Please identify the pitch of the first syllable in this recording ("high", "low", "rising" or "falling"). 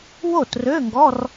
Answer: falling